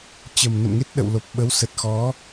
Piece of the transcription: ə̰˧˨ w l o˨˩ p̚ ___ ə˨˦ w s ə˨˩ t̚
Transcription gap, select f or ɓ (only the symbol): ɓ